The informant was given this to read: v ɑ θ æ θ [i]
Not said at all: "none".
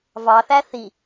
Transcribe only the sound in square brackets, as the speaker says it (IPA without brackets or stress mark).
i